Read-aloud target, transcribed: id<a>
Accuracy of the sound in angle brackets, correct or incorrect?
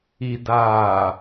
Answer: incorrect